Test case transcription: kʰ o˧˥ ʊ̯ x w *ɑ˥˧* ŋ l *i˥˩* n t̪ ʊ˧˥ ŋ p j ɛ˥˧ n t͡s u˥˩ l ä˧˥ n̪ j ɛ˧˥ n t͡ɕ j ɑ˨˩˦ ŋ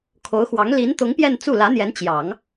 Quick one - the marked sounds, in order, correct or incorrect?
incorrect, incorrect

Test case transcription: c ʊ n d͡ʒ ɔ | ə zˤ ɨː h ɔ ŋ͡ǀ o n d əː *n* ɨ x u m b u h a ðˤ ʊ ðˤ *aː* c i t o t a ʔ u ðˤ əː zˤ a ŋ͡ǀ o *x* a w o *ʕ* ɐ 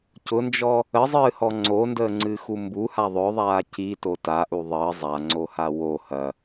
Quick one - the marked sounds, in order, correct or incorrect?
incorrect, correct, incorrect, incorrect

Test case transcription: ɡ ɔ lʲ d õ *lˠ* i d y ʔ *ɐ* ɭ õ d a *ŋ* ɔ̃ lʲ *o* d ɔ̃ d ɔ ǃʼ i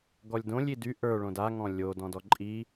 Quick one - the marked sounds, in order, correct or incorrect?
incorrect, incorrect, correct, correct

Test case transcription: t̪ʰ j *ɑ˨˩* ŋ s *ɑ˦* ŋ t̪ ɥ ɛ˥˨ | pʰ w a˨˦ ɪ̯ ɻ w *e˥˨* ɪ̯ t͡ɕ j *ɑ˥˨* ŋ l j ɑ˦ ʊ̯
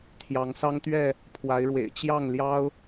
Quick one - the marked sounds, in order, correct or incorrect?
incorrect, correct, incorrect, correct

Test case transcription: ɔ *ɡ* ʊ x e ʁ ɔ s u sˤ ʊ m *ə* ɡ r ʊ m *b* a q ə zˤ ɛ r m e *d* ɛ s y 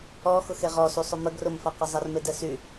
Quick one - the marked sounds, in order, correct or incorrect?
incorrect, correct, incorrect, correct

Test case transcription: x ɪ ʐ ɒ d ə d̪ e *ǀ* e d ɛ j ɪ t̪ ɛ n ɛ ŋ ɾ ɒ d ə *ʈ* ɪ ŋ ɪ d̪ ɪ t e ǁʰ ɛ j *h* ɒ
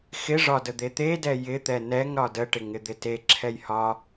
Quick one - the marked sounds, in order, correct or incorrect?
incorrect, correct, correct

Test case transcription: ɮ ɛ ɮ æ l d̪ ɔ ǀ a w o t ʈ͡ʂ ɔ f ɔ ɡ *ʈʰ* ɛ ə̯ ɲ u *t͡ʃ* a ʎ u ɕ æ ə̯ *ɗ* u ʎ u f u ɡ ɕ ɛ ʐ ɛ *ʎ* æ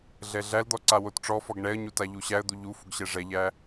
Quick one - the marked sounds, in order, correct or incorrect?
incorrect, incorrect, incorrect, correct

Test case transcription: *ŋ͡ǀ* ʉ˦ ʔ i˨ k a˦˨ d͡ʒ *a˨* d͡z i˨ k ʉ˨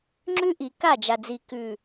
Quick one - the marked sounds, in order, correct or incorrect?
incorrect, correct

